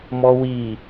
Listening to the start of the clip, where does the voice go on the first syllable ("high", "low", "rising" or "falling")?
low